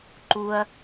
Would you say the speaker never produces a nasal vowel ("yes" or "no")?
yes